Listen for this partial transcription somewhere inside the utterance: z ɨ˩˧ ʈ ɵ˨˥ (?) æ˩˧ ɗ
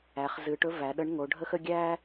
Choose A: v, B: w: A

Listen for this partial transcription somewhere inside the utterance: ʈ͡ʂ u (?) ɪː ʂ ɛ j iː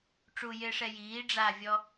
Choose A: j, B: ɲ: A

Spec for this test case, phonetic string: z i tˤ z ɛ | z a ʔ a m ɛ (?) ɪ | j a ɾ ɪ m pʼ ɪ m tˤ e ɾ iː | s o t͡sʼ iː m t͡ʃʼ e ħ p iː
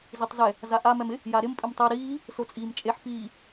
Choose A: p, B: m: B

